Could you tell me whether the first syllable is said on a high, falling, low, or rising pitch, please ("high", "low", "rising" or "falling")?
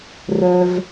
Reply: low